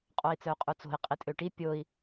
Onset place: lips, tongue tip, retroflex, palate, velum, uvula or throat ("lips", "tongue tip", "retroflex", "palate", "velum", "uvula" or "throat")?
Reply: uvula